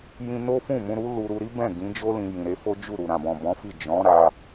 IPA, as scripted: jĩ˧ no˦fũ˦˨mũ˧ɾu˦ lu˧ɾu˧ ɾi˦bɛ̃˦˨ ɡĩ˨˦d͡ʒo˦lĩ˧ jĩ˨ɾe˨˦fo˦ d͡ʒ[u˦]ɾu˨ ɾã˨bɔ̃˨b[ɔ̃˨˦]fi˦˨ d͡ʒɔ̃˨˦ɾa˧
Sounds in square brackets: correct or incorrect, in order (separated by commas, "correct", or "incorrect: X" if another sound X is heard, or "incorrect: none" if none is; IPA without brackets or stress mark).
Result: incorrect: u˦˨, correct